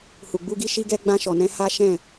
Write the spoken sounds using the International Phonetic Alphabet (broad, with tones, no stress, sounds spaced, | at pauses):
h u˨ ɡ͡b u˧ ɡ i˦ ʃ i˧ ɡ ɛ˧ ɡ͡b ã˧ ʃ ɔ˨ n ɛ̃˧ h a˦ ʃ ɛ̃˦˨